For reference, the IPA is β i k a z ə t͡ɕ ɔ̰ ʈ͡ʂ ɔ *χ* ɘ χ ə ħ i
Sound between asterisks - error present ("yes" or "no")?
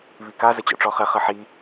no